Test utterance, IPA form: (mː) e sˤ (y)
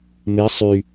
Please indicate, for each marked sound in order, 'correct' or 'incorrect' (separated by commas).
incorrect, correct